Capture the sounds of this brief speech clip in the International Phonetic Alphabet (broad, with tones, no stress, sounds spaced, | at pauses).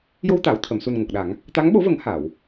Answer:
j o˧ w t̪ aː˨˩˨ w t̪ʰ ə˨˩˨ m s u˨˩ n ŋ o˨˩ k̚ ɗ a˨˩˦ ŋ | t̪ a˧˥ ŋ ɓ o˧˥ v ə˨˩˦ ŋ h a˨˩˨ w